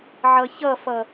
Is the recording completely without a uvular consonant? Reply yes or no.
yes